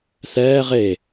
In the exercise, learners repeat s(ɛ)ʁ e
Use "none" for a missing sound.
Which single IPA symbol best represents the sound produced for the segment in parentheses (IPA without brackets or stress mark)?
ɛː